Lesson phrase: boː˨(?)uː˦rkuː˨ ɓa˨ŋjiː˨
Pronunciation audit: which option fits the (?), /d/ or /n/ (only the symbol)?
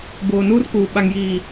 n